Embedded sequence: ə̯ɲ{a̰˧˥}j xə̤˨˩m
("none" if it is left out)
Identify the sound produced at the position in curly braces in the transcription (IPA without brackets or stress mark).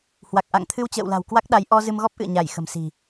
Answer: a˧˩